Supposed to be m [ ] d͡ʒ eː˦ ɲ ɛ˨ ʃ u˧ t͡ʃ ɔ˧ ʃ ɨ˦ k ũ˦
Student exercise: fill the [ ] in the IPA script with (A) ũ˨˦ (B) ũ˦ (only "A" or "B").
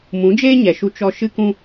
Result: A